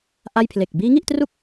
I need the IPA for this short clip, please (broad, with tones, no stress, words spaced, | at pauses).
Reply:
ʔa˥˩j pʰle˨˩k̚biː˦˥ŋi˥˩ʔtru˥˩k̚